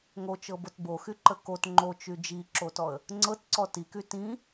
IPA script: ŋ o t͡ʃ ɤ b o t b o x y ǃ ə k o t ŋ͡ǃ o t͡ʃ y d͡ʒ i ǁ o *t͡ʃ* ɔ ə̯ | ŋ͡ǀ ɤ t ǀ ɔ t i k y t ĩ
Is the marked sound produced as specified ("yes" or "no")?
no